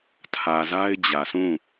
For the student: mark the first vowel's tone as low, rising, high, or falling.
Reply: low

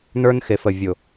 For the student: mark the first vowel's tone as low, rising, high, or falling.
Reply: high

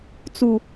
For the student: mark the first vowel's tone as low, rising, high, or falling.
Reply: low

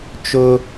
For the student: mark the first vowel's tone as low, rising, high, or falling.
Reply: high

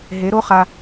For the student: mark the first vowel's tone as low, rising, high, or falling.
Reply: rising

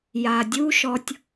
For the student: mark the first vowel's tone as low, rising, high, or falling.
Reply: low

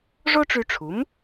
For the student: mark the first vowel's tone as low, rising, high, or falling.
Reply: high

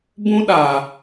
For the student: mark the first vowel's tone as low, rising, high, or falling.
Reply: high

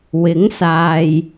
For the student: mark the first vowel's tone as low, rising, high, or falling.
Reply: rising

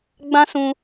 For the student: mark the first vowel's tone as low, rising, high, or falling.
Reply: high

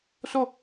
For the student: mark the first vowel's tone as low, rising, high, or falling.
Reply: falling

